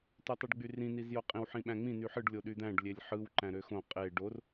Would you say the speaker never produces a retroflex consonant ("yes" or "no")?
no